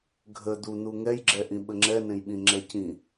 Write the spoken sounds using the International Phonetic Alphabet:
ɡʱ ə d̪ u n̪ u ŋ ɛ j ɡ͡ǁ ɛ ʔ ĩ ɓ ə ŋ͡ǁ ɛ n ẽ j ɓ ĩ ŋ͡ǁ ɛ c ĩ

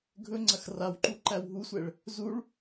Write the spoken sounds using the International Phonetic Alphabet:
ɡʱ ɵ ŋ͡ǀ ɐ x r a w ǃ u ǃ æ w ɦ u sʷ ɛ ɭ | z u ɭ

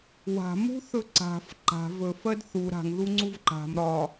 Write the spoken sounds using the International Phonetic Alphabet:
w a̤ m ṳ θ ɵ ǀ a̤ f ǃ a̤ v ɵ f ɜ d θ u ɾ a̤ ŋ ð u ŋ͡ǀ u v ǃ a̤ m ɾ ɒ

